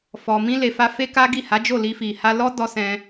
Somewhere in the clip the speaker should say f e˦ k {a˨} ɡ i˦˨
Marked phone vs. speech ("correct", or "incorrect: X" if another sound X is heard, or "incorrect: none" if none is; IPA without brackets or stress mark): incorrect: a˦